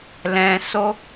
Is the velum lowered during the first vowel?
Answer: yes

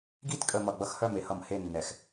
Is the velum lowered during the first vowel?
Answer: no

